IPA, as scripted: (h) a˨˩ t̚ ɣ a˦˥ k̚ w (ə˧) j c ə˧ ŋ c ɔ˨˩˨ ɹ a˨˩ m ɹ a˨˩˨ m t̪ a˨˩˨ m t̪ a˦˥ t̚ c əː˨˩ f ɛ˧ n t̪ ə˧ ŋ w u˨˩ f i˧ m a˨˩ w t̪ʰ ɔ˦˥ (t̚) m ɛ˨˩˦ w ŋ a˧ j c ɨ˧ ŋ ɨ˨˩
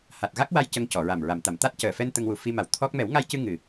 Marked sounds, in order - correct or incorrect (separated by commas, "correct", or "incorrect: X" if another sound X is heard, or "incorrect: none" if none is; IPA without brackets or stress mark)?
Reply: correct, incorrect: a˧, incorrect: k̚